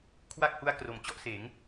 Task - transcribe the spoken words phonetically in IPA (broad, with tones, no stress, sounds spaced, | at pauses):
kʰ w a˥˩ k̚ h u˦˥ a̯ k r o˩˦ m t͡ɕ ɔ˥˩ ʔ s eː˩˦ ŋ